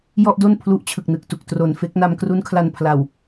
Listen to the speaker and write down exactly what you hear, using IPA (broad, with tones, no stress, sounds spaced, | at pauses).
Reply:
j ɔ˥˩ ʔ d o˥˩ n pʰ l u˦˥ ʔ t͡ɕʰ ɯ˨˩ k̚ n ɯ˨˩ k̚ t u˨˩ k̚ t r o˨˩ n f e˦˥ k̚ n a˧ m k r u˦˥ n kʰ l a˧ n pʰ l a˨˩ w